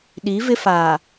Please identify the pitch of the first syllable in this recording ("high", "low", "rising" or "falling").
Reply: rising